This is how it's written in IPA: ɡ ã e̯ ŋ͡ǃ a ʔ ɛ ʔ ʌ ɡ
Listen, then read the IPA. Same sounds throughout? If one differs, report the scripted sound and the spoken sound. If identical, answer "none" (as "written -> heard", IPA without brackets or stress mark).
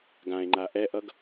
none